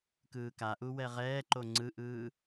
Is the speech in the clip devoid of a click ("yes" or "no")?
no